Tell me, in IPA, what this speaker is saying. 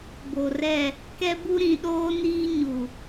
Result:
b o˨ r ɛ˦˨ | k ɛ˦ b u˦ ɾ ĩ˨ ɗ oː˦ n iː˦ ɲ u˨

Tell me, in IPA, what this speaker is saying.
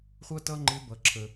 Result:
χʷ ʌ˥ t ʌ˥ ŋ͡ǃ ɪ˧˥ b ʌ˩ ǁʰ ə˩

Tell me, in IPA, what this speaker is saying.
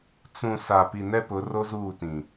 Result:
t͡s ũ˨ s a˨ p i˨ n ɛ˦ p ʊ˨˦ r o˦ z uː˦˨ t ĩ˨

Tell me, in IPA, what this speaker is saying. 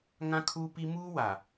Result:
ŋ ã˦ kʰ uː˦ p i˦ m uː˦ w a˨

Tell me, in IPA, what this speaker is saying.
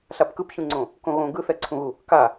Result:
ɬ a p k ɯ p ç ũ ŋ͡ǀ õ | k õ ɣ õ ɡ ɯ θ ɛ ǀʰ ũ ɣ u | k a

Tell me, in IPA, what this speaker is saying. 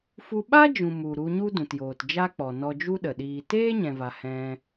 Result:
f u˧ ɓ a˦ d͡ʒ ũ˨ m u˨ ɾ u˧ ɲ u˦ d ũ˨ t j oː˨ t d͡ʒ a˦ k͡p ɔ˨ n ɔ˧ d͡ʒ u˦ ɗ ə˨ ɗ iː˨ t eː˦ ɲ ɛ̃˨ v a˨ h ɛ̃˧

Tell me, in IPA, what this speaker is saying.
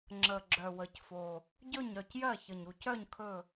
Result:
ŋ͡ǁ ə˨˩ ɡ͡ǁ œ˨˩ w ə˨˩ c f o˨˩ | ɟ ɵ˦˨ ɲ œ˦˨ c j ɜ˦˨ ç ə˨˩ ɲ u˨˩ c œ˦˨ ɲ kʰ ɵ˦˨

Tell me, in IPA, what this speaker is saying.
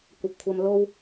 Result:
kʷ ɐ˨ p̚ kʷʰ ɐ˧ m l o˧ w

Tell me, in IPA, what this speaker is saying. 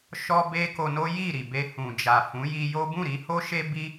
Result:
ʃ ɔ˦ b e˦ k o˧ n o˦ j i˦˨ ɾ i˨ b e˧ h ũ˨ d͡ʒ a˨ f ũ˨˦ j i˧ j o˦ b ũ˦˨ ɾ i˨˦ h o˦ ʃ e˦ b i˦

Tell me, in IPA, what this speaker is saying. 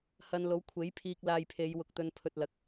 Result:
h ɐ˧ n l o˨˥ w kʷʰ e˨˥ j pʰ iː˧ k̚ l aː˧ j pʰ e˨˧ j w ʊ˨ k̚ t̪ ɵ˧ n pʰ ɵ˧ t̚ l ɐ˧ k̚

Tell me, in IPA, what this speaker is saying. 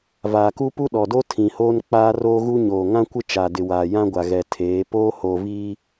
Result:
v aː˨ k u˦ p u˦ ɗ ɔ˨ d o˦ tʰ ĩ˨ h oː˦ n k͡p aː˦ r oː˦ ɣ u˦ ɲ oː˨ ŋ ã˦ kʷ ɪ˦ t͡ʃ a˨ d ɪ˨ w aː˨ j ã˦ ɡʷ a˨ ɣ ɛ˨ tʰ eː˨˦ p oː˦ h oː˨ v iː˦

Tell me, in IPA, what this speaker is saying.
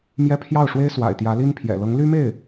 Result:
m j ɛ˥˧ pʰ j ɑ˥˩ ʊ̯ ʂ w e˥ ɪ̯ s w a̰˨˩ ɪ̯ t̪ j ä˧˥ l i˥ n pʰ j ɛ̰˨˩ l ɤ˧˥ ŋ l y˥ m e˥˩ ɪ̯

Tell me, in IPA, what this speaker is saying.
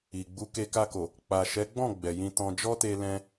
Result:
i˨ ɡ͡b u˨˦ k e˧ k a˧ k o˨ | k͡p a˨ ʃ ɛ˨˦ ɡ͡b ɔ̃˦˨ ɡ͡b ɛ˨ j ĩ˧ t ɔ̃˧ d͡ʒ ɔ˦ t e˧ l ɛ̃˧

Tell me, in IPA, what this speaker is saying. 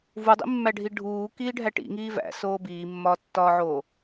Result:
v u dˤ ḭ mː æ ɖʱ i ɖʱ uː k iː ɖʱ æ ʈ ḭ ŋ iː v æ̰ s oː b iː mː ɒː tː ɒː ʕ oː

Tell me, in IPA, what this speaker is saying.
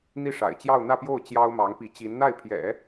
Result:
n̪ i˥˩ ʂ a̰˨˩ ɪ̯ t͡ɕ j ɑ˥˧ ʊ̯ n̪ ä˥˧ p j o˥˩ ʊ̯ t͡ɕ j ɑ˥ ʊ̯ m ɑ˧˥ ŋ p i˧˥ t͡ɕ i˧˥ n n̪ a˥˩ ɪ̯ pʰ j ɛ̰˨˩˦

